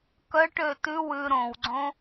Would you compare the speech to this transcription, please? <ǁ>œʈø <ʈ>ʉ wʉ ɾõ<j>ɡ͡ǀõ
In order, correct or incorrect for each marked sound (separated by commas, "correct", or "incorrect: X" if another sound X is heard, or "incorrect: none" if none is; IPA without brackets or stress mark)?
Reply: incorrect: k, incorrect: t, incorrect: w